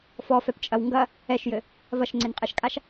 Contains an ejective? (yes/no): yes